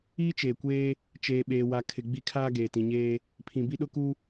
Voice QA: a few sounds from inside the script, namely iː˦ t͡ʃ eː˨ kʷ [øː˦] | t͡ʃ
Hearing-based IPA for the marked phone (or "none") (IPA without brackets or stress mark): eː˦